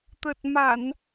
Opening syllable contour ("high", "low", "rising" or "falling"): low